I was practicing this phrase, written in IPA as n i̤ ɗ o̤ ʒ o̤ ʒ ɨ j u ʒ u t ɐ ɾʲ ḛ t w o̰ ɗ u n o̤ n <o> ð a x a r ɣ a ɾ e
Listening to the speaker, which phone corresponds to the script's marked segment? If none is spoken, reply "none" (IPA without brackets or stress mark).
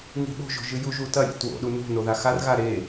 o